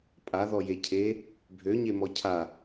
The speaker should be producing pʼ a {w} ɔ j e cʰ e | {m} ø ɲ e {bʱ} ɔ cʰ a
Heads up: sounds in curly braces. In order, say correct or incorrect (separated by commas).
incorrect, incorrect, incorrect